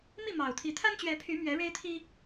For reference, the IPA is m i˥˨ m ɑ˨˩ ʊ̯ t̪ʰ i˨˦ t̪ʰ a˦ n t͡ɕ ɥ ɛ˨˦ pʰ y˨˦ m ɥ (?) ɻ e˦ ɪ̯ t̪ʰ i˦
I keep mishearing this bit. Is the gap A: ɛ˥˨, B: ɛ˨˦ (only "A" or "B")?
B